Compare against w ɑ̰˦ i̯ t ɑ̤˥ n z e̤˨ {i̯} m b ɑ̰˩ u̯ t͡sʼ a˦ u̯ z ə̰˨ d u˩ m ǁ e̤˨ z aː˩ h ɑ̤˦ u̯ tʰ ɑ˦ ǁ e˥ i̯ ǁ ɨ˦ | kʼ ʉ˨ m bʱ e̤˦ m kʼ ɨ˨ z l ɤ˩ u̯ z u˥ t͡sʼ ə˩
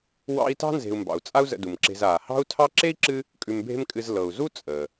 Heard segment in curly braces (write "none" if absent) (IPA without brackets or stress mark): u̯